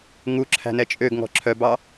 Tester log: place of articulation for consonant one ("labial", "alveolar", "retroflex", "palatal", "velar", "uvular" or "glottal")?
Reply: velar